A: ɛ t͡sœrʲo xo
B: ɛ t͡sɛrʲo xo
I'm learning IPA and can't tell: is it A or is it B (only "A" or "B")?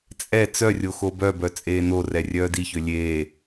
A